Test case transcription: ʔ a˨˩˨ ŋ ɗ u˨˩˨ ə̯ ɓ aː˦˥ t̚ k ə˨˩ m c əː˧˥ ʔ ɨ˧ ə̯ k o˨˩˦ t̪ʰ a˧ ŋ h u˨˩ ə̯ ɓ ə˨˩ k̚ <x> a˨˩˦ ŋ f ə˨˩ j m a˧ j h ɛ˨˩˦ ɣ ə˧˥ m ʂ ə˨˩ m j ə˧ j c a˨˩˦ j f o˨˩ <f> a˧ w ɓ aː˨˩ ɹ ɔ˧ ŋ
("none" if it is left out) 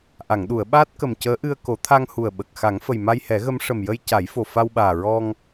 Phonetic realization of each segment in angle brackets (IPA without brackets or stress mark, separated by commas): x, f